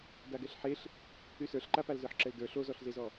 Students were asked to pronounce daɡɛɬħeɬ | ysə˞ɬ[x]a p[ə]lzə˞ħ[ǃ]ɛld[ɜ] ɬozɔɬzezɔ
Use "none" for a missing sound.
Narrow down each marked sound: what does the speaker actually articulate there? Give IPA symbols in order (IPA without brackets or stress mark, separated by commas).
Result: ǃ, a, ǁ, ə˞